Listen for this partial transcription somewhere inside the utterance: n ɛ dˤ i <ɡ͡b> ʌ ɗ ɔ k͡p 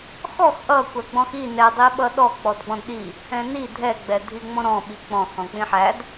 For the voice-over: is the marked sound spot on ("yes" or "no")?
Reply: no